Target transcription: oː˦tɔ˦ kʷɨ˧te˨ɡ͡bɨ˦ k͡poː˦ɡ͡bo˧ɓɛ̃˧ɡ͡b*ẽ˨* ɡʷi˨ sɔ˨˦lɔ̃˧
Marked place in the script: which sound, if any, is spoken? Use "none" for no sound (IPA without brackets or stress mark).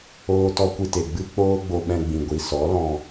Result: ĩ˨